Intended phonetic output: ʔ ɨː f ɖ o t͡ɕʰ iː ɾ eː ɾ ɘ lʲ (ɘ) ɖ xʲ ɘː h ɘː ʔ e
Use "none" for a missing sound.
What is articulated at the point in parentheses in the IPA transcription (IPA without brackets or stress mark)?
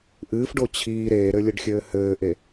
ɘ